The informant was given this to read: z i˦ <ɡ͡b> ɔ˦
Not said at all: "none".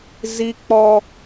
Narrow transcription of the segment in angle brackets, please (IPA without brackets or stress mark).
k͡p